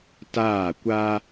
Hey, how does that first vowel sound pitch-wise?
falling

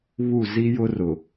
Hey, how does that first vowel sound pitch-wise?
falling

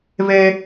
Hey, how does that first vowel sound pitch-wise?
high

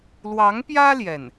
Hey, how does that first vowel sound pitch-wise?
rising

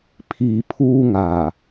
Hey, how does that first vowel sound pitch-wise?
low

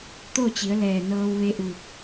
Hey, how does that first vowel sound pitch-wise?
falling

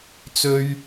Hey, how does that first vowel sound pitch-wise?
high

